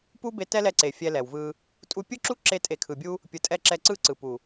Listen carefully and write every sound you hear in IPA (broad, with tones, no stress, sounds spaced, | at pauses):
p u˦ b e˧ t ɛ˦ l ɛ˧ ǀ e˨ fʲ ɛ˧ l ɛ˨ w v ɯ˧ | tʼ u˧ pʲ ɯ˦ ǁ u˦ ǁ e˧ tʼ e˨ kʰ ɯ˨ bʲ u˧ | pʲ ɯ˨ tʼ ɛ˧ ǁ ɛ˧ ǀ ɯ˦ ǀ ɯ˨ p u˨